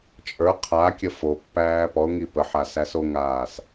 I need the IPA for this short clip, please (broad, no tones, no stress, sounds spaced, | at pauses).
t͡ʃʼ ə˞ qʰ a kʲ ə f o pː æː p ɔ ʊ̯ ŋ i p ə ħ a s æ s o ŋ aː s